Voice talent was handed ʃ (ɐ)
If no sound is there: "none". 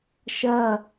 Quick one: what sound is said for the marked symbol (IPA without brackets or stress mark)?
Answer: ɐ